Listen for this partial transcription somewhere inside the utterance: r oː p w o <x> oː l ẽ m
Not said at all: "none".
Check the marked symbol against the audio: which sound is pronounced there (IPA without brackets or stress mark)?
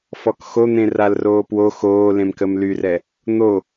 x